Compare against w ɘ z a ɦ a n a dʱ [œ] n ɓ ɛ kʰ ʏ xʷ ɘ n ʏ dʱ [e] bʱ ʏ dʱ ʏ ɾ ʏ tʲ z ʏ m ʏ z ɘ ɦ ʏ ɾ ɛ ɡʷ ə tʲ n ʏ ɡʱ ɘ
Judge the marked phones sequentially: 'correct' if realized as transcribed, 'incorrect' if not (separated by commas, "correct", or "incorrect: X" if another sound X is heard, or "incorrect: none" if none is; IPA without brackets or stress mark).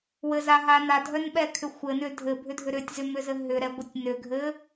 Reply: correct, incorrect: ɘ